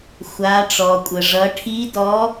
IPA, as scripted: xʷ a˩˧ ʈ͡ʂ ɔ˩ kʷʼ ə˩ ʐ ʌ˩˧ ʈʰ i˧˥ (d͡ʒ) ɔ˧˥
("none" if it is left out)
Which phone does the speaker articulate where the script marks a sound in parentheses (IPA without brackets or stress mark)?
d